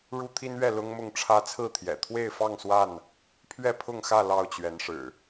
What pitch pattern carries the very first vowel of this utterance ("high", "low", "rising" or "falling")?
high